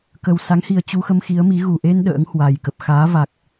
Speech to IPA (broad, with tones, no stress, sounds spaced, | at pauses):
k ə˨˩ w s a˨˦ ŋ h i˨˩ ə̯ t͡ɕ u˧ x ə˧ m x i˨˦ ə̯ m i˨˦ ɣ u˨˩ ʔ e˧ n ɗ ə̰ː˧˥ ŋ h w a˨˩ j k ə˨˩ p̚ x aː˨˦ v a˨˩ k̚